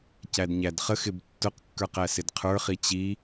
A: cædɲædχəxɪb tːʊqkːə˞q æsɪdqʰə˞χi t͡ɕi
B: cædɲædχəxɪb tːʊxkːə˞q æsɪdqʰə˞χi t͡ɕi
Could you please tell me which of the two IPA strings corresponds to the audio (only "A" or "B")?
A